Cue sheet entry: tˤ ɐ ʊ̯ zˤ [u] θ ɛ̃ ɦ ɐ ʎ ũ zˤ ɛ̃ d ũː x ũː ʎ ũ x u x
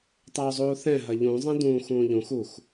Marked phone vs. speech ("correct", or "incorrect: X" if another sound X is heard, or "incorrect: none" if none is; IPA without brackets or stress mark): incorrect: uː